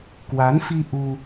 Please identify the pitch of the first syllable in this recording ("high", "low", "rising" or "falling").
rising